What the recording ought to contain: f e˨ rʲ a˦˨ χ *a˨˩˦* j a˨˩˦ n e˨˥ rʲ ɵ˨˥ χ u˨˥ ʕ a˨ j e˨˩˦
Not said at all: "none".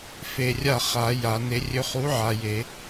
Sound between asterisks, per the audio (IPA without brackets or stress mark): a˨˩˦